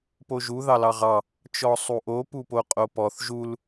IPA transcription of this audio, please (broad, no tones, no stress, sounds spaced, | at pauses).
p o ʒ u ð ɑ l ɑ ʁ ɑ | t͡ʃ ɔ sˤ u ʔ o p u p o qʼ o p ɔ θ ʒ u l